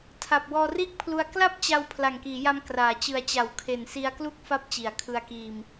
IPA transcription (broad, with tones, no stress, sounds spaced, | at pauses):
tʰ a˨˩ p̚ w ɔː˧ r iː˥˩ k̚ pʰ l u˧ a̯ k l a˥˩ p̚ t͡ɕ a˧ w pʰ l a˨˩ ŋ k iː˩˦ j a˧ m k r aː˩˦ t͡ɕ ɯ˨˩ a̯ t͡ɕ a˩˦ w kʰ e˨˩ n s i˧ a̯ k l u˥˩ k̚ f a˦˥ p̚ t͡ɕ i˩˦ a̯ kʰ ɯ˧ a̯ k iː˧ m